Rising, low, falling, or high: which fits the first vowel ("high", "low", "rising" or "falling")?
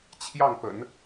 falling